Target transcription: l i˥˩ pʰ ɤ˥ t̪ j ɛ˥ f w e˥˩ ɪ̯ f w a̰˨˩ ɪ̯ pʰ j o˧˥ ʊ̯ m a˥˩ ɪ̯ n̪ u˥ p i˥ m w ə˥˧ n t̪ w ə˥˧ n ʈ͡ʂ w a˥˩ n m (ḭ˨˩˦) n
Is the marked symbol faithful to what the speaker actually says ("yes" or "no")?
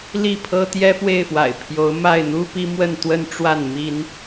no